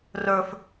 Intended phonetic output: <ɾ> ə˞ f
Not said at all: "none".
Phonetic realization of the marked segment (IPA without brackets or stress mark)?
r